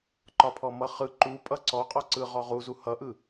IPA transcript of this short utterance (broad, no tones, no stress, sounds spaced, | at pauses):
ǃ ɒ pʰ ɔ m ʌ χ ɯ ǃ u pʼ ʌ ǀ ɔ qʼ ɔ ǀ ɯ ʁ ɔ ʁ u z u h ʌ ʔ ɯ